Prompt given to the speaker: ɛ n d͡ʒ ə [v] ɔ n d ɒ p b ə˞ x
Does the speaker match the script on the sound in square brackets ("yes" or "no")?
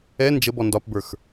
no